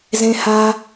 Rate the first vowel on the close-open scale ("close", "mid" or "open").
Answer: mid